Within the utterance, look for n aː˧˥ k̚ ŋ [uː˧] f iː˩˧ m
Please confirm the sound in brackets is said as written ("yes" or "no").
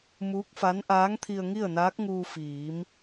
yes